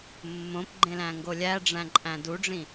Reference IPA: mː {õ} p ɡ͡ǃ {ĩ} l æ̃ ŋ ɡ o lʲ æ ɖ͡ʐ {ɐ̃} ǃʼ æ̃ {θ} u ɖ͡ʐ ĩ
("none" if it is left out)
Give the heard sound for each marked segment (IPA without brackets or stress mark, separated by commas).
õ, ẽ, æ̃, d